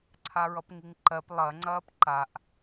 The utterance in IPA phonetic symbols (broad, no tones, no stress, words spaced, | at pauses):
ǀʰaɹʌpŋiŋǃɜp lˠɐŋ͡ǀɐːp ǃaʔ